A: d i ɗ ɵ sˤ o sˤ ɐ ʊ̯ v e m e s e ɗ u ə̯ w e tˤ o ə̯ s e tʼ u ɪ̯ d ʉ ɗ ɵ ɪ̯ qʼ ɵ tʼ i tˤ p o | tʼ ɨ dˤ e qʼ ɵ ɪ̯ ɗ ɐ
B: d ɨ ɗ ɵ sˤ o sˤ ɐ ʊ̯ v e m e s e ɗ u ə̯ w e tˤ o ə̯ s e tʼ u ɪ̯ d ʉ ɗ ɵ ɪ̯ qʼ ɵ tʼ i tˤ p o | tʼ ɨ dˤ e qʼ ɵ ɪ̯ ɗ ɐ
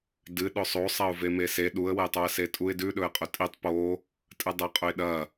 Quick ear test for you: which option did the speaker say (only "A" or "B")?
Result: B